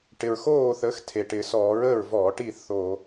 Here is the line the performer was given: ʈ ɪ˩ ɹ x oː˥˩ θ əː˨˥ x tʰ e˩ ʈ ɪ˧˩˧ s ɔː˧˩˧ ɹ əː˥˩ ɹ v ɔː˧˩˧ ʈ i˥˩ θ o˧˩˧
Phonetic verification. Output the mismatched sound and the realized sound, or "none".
none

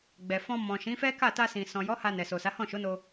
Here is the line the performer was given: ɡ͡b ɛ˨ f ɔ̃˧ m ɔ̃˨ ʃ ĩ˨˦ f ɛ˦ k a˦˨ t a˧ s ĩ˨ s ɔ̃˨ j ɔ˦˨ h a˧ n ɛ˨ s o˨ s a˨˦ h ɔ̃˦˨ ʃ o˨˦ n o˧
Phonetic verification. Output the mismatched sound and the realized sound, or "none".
ɔ˦˨ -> ɔ˨˦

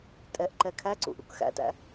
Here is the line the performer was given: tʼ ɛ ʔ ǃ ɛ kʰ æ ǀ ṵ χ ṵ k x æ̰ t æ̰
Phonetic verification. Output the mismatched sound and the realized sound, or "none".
χ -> ʔ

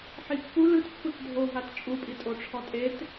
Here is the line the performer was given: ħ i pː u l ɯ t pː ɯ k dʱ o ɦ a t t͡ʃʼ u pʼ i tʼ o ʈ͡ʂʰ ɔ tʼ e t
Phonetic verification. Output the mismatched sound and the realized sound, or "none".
none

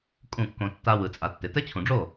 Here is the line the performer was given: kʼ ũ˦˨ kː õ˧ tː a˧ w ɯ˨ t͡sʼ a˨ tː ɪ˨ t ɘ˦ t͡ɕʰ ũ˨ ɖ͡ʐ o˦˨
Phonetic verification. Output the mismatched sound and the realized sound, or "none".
none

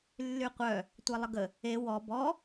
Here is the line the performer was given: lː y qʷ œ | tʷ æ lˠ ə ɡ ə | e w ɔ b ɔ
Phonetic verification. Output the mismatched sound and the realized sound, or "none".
none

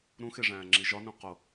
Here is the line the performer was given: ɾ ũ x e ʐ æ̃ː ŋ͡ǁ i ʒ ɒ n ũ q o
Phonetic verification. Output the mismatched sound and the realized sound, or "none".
none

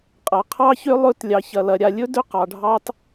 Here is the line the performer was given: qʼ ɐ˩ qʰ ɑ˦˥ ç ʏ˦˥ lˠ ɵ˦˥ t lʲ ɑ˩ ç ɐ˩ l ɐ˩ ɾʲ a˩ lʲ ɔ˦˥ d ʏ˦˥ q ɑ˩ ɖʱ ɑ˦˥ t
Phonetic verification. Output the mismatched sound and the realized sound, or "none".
ɔ˦˥ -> ɵ˦˥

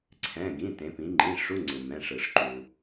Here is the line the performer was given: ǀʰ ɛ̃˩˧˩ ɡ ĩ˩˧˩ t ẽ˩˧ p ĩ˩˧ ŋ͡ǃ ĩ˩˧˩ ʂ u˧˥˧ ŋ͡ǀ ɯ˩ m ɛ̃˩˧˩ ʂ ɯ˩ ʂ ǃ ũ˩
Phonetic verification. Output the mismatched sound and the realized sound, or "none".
none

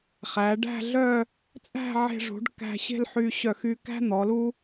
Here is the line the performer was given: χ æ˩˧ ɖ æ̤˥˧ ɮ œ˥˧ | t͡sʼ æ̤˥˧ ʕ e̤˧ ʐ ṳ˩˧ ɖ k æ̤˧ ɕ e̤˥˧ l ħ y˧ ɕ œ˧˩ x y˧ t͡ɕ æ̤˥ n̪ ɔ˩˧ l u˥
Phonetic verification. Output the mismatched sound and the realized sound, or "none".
t͡ɕ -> k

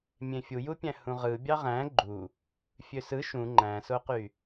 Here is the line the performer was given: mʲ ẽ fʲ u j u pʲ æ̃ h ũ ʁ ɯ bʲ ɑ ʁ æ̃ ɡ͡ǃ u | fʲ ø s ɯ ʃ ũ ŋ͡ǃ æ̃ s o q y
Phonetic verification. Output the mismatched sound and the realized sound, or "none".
none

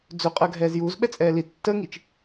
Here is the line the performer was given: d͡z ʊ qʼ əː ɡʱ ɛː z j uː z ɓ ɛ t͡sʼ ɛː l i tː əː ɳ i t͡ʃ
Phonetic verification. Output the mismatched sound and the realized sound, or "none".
ɳ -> ŋ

